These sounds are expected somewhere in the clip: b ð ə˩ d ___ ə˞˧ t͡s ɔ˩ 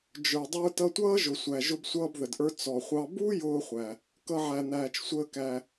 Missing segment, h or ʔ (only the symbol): ʔ